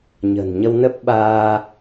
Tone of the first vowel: low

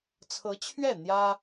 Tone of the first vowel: rising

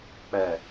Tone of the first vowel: low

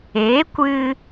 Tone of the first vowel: rising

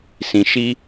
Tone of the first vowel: low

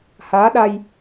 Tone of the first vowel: rising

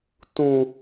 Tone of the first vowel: high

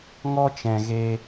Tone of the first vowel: high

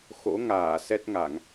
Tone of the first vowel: rising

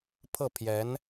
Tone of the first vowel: falling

